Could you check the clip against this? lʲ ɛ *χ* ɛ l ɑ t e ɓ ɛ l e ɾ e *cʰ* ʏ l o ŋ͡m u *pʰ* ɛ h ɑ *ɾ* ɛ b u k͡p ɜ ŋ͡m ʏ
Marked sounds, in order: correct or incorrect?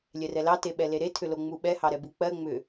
incorrect: r, incorrect: tʰ, incorrect: ɓ, correct

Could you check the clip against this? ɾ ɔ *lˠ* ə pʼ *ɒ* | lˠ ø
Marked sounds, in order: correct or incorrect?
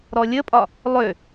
incorrect: lʲ, correct

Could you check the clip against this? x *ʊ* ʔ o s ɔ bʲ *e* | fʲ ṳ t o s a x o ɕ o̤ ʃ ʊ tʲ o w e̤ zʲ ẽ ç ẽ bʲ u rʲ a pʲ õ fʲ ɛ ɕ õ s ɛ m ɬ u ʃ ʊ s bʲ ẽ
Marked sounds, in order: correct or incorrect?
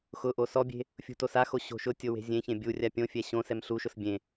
correct, incorrect: e̤

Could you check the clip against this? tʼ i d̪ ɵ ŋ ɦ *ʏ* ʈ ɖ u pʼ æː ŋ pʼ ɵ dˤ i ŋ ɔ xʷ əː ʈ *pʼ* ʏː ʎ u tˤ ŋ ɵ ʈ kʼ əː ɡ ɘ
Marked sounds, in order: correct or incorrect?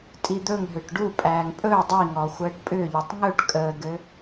correct, correct

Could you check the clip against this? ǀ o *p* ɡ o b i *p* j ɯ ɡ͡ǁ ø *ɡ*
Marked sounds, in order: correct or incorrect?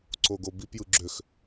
incorrect: none, correct, incorrect: x

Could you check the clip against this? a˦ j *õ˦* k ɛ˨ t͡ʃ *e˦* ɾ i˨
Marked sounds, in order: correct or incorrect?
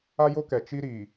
incorrect: o˦, incorrect: i˦

